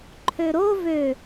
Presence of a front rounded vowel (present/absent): present